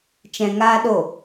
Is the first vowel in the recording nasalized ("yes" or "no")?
yes